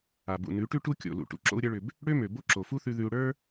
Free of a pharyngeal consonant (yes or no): yes